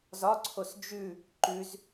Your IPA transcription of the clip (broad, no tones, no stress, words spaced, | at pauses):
zɒǀʰos d͡ʒʉ | ǃʉz